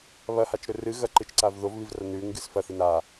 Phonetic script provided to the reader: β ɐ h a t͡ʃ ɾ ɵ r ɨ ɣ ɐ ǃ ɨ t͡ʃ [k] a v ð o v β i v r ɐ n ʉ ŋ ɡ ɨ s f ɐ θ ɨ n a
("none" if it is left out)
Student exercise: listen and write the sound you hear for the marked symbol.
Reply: ǀ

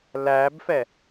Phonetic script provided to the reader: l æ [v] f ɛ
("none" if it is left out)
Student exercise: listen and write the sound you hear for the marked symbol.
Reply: b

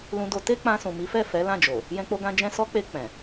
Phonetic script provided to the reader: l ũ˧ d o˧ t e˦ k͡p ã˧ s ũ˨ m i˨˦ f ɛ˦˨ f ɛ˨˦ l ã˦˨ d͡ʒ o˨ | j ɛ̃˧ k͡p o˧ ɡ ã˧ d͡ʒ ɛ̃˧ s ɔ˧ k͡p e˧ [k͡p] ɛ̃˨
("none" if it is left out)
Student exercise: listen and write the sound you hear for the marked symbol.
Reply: k͡p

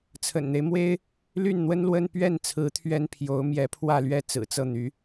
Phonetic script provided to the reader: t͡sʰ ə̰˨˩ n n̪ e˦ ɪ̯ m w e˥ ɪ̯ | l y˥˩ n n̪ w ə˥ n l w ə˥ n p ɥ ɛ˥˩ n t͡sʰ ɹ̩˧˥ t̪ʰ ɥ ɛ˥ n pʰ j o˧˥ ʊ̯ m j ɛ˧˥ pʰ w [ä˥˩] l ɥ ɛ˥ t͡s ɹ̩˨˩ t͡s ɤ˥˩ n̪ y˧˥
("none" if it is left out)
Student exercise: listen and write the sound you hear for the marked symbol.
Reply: ä˥˩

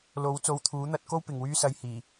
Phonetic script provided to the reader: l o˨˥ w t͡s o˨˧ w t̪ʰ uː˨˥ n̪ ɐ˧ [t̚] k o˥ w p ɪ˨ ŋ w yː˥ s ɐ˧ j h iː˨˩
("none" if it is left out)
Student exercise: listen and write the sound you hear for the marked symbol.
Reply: t̚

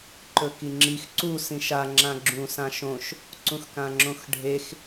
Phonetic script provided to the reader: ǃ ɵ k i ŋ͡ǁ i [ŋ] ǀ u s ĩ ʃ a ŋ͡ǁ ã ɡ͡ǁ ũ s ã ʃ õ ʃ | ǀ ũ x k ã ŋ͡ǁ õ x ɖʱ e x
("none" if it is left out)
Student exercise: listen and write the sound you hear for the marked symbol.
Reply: x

